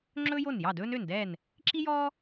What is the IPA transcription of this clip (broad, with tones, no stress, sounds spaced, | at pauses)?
ŋ͡ǁ ɵː˥ j o˥˩ n j ɑ˥˩ d ɵː˥ n ø˥˩ n d ɛː˥˩ n | ǁ i˥ j ɔː˥